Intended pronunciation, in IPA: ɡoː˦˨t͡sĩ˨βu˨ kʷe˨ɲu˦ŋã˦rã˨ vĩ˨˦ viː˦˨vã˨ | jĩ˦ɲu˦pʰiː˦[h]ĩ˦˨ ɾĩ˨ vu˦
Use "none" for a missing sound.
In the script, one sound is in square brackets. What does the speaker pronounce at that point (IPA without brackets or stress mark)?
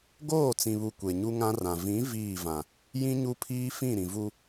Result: f